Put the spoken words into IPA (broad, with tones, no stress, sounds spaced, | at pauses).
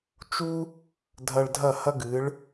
t͡ʃ u˥ | dʱ ɐ˧ ɭ dʱ ɐ˥˩ h ɐ˥ ɡ ɨ˩˥ ɭ